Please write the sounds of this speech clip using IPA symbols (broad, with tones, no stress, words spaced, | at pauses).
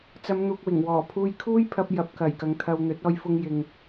t͡sɐ˨˧mn̪uː˨k̚wɪ˨˩ŋ wɔː˨˩pʰuː˧j kʰuː˥jpʰɐ˧p̚ jɐ˨˥p̚kɐ˨˩jkɐ˨˧ŋt̪ʰɐ˧w n̪ɵ˨˥t̚ɔː˧jfʊ˧ŋjɪ˨ŋ